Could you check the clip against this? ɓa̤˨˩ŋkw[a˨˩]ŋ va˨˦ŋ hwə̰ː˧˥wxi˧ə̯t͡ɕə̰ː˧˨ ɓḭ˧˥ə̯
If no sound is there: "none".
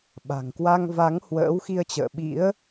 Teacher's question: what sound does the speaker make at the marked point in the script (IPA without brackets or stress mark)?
a˧